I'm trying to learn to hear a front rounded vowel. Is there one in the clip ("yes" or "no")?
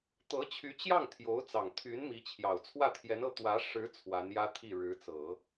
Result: yes